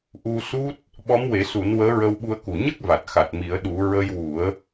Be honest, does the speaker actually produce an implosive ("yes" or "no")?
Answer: yes